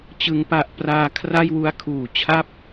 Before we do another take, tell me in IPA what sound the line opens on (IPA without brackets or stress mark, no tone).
t͡ɕ